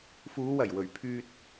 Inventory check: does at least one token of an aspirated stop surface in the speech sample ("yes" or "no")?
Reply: yes